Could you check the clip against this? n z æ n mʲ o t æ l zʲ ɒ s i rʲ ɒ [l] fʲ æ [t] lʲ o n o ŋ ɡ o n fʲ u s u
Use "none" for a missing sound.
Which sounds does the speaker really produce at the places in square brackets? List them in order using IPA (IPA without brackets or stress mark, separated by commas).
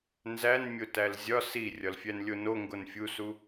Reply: l, n